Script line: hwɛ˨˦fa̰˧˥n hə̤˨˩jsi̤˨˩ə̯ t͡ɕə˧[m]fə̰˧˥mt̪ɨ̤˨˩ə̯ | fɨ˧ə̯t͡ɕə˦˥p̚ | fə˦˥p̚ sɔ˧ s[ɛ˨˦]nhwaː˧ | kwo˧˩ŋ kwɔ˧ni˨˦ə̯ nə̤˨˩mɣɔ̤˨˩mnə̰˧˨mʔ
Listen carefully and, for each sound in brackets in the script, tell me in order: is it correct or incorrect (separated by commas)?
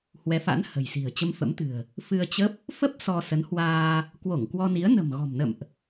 correct, incorrect